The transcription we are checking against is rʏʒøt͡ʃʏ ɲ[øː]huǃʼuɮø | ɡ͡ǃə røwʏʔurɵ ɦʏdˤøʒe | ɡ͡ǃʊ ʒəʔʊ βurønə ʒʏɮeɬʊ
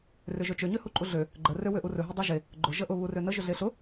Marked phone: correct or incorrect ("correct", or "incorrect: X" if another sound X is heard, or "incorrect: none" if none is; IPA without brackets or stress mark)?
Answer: incorrect: ø